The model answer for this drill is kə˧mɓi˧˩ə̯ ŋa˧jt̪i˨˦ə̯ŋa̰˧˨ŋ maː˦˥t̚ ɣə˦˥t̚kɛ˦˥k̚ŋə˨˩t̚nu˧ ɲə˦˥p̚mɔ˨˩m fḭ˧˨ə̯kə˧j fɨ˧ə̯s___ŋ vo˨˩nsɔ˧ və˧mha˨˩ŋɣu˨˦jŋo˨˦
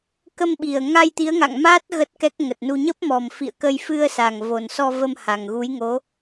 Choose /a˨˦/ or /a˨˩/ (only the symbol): a˨˩